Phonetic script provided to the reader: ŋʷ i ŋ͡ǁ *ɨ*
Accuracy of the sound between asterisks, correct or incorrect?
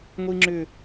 incorrect